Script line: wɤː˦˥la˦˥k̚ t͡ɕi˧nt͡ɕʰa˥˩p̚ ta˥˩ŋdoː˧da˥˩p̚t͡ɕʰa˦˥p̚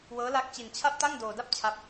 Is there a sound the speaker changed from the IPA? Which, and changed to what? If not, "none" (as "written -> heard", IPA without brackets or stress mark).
none